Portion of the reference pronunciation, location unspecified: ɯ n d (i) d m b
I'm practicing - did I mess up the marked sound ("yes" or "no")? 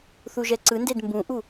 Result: yes